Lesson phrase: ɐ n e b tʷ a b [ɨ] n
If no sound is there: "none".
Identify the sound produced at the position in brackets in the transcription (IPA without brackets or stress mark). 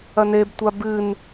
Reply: ɨ